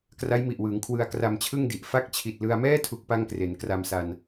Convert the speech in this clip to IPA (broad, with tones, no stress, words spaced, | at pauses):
kra˦˥jmi˨˩ʔwɯː˩˦ŋ kʰwɯ˧a̯ kra˧mt͡ɕʰɯ˥˩ŋdi˨˩ʔ fa˦˥k̚t͡ɕʰi˨˩t̚lɯ˧a̯mɛː˥˩ tʰu˦˥k̚pa˥˩ŋkre˩˦n kra˧msa˧n